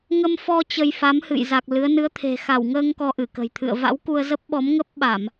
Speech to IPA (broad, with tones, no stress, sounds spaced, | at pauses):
ŋ ə˧ m f ɔ˧ t͡ɕ ə˧ j f a˨˦ m h ɨ̰˧˨ j z a˨˩ k̚ l ɨ˨˦ ə̯ n ɨ˨˦ ə̯ t̪ʰ e̤˨˩ x a˧˩ w ŋ əː˧ ŋ k ɔ˧ ʔ ɨ˧˩ k ə̤˨˩ j t̪ʰ ɨ̰˧˨ ə̯ v a̰˧˥ w k u˧ ə̯ z ə˦˥ p̚ ɓ ɔ˨˦ m ŋ ə˦˥ p̚ ɓ a˧˩˨ m